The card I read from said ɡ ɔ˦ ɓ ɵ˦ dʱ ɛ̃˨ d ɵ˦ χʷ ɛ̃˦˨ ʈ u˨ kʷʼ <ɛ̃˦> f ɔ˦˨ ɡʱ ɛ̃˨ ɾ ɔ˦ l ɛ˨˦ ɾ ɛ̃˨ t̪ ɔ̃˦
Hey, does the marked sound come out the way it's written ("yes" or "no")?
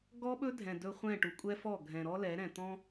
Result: no